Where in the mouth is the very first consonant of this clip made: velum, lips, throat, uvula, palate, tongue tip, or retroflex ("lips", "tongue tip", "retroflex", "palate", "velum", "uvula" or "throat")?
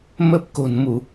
lips